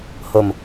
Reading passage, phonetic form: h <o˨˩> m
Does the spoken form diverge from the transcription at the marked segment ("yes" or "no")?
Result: no